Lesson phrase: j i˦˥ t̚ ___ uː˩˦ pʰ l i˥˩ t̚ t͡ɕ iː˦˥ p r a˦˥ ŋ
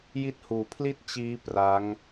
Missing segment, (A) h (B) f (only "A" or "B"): A